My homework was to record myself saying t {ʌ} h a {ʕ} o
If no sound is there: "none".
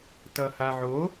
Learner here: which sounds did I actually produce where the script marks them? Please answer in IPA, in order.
ʌ, ʕ

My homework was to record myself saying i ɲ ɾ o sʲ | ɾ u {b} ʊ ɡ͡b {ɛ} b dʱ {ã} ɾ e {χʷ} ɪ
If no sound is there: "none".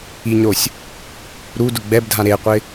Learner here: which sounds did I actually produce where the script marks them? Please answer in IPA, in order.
d, ɛ, ã, qʷ

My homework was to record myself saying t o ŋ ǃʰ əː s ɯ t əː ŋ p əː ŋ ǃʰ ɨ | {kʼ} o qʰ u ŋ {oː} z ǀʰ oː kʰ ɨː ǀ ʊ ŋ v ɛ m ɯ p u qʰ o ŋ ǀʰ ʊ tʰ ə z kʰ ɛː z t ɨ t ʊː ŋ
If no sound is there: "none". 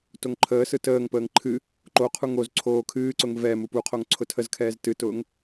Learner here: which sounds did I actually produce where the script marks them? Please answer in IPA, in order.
ǃ, o

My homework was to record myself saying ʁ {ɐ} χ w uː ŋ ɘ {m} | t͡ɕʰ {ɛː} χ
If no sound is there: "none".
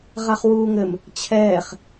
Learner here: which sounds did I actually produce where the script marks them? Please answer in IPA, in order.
a, m, ɛː

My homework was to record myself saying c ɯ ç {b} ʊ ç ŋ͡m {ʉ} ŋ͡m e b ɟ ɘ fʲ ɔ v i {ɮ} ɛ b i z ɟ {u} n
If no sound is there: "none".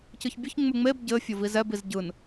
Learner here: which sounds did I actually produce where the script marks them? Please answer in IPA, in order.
bʲ, ʉ, z, ɯ

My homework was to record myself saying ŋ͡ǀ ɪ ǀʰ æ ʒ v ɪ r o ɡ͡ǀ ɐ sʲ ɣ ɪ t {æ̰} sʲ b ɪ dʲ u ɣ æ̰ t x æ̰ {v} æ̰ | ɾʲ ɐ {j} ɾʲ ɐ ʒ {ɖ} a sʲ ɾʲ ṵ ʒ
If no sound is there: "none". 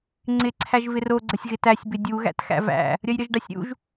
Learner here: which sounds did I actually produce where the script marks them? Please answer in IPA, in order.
æ, v, j, ɖ

